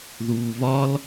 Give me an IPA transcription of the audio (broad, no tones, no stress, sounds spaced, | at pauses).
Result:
ð uː β ɒ l